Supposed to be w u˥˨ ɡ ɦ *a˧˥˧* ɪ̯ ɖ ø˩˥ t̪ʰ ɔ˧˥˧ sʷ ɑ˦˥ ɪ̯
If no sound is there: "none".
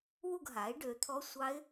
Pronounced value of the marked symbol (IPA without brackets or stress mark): a˩˥